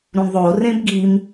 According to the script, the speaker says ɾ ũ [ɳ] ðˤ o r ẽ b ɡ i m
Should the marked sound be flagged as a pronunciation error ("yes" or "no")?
no